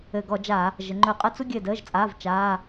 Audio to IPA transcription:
ɘ˨˩ ɡ ɔ˧˩˧ d͡ʒ a˧˩˧ | ʒ ə˩˧ ŋ͡ǃ ɵ˧˩˧ qʼ ə˧˥˧ t͡s u˥ ɡʲ ɘ˦˨ d əː˧˥˧ ʒ t͡sʼ aː˧˥˧ v t͡ʃ aː˧˥˧

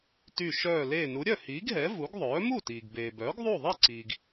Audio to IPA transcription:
t y˧˩ ʃ œː˧˩ l eː˧˩ n u˩˥ ɾʲ œ˥˩ h iː˩˥ ɡ ɦ ɛ˩˥ v u˩˥ ɡ ðˤ œː˩˥ m u˥˩ t iː˩ ɡ b eː˩ b œː˩˥ ɡ ðˤ u˥˩ ðˤ i˥˩ ǀ iː˩ ɡ

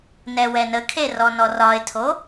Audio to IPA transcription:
n ɛ w ɛ n ə kʰ e r ɔ n ɔ r ɒ ɪ̯ tʰ o

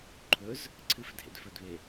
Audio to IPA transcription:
ǃʰ ɵ z | ǀʰ ɨ f dʱ ḛ d f ɵ d β e

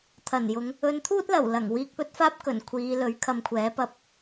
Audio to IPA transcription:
t̪ʰ ɐ˨˩ n j ʊ˨˧ ŋ | ɵ˨˧ n t̪ʰ uː˥ t̚ l ɐ˨˩ w l ɐ˨˩ ŋ w iː˧ k̚ p ɵ˥ t̚ f aː˥ p̚ k ɵ˨˩ n kʷʰ iː˨˧ l ɵ˨˥ ɥ kʰ ɐ˧ m kʷʰ ɛː˨˥ p ɐ˧ p̚

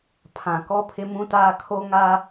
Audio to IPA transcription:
pʰ ã˨ k ɔ˦ pʰ ɪ˦ m ũ˦ t aː˦ kʰ o˦ ŋ a˦

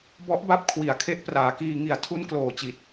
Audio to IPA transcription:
b ɔ˦˥ ʔ b a˦˥ p̚ kʰ w i˨˩ a̯ kʰ e˦˥ ʔ p r aː˩˦ k iː˧ ŋ i˧ a̯ tʰ u˦˥ n k l oː˨˩ t͡ɕ i˨˩ t̚

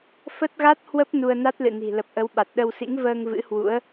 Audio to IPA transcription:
f ə˦˥ t̚ ɣ a˦˥ t̚ h w ə˦˥ p̚ n u˧ ə̯ n a˦˥ t̚ l ɨ̰˧˨ n i̤˨˩ l ə˨˩ p̚ ʔ ə˨˦ w ɓ a˨˩ t̚ ɗ ə˧ w s ḭ˧˥ ŋ v əː˧ ŋ v ɨ̰˧˥ h w ṵ˧˥ ə̯

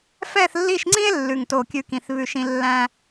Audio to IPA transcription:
f ɛ˦˨ θ lː i˦˨ ʃ ŋ͡ǀ ĩ˦ e̯ lː ʉ˦˨ ŋ t o˦˨ kʲ ʉ˦ k ĩ˦˨ θ β ʉ˦˨ ʃ ĩ˦ lː æ̃˦

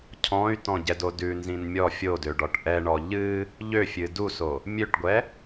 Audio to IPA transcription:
cʰ ɔ̃ y̯ t ɔ̃ ɟ ɛ d o d ʉ n z ĩ n mʲ ɔ fʲ o d ø ɖ ɔ ʈ ʔ ɛ ɳ ɔ ʎ ɨ | ʎ ø fʲ ɨ d u s o | mʲ ø ʈ ɡʷ ɛ

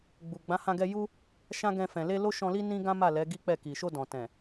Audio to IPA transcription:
ɡ͡b u˨ ɡ͡b ã˨˦ h ã˧ ɡ ɛ˧ j u˦ | ʃ ã˦ ɡ ɛ̃˧ f ɛ̃˨ l e˧ l o˦ ʃ ɔ̃˧ l i˦ n ĩ˦ ɡ ã˦ m a˦˨ l ɛ˨˦ ɡ i˦ k͡p ɛ˦˨ k i˨ ʃ o˧ d ɔ̃˨ t ɛ̃˨

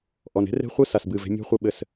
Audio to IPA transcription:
ʔ ɔ˨ n e̤˦ r e̤˦ χʷ ɨ˦ s a˨ s b ɨ˦˨ v e̤˦ mʲ ɔ̤˦ χʷ ɘ˦ ɓ ɘ˦˨ s

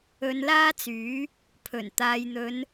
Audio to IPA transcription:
ɵ˨˧ n l aː˥ t͡s yː˨˥ | pʰ ɵ˨˩ n t̪ aː˨ j n̪ ɵ˨˧ n

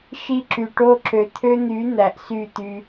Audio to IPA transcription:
ʃ i˧ ǁ y˨ ʈ o˧ ǁ ø˨ t̪ʰ ø˧ n̪ y˨˦ n̪ æ˨ ʔ s y˦˨ t̪ y˧

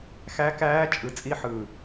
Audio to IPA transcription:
x æ˦˥ k æː˦˥ t͡ʃʼ ɯ˨˥ t͡sʼ i˦˥ ħ ɯ˨˩

